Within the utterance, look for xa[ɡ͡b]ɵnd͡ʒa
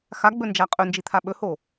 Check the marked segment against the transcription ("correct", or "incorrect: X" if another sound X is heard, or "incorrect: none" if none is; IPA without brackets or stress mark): correct